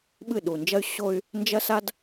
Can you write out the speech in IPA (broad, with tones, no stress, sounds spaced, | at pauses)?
ɓ ɨ˦˨ ɗ u˨ n d͡ʒ ɐ˦ y̯ ɕ o˦ y̯ | n d͡ʒ ɐ˦ s a˦ d